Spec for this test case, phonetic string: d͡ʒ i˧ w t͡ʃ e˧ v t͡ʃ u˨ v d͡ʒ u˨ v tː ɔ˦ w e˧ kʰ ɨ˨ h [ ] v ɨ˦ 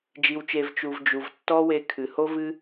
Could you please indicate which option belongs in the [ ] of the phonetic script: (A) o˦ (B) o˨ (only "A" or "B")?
A